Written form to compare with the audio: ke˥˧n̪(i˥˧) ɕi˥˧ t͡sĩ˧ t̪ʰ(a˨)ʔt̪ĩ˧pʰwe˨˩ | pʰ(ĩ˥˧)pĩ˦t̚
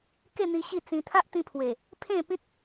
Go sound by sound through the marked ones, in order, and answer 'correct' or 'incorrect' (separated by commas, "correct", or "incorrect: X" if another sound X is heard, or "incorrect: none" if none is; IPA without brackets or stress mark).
incorrect: i˧, incorrect: a˦, incorrect: ẽ˥˧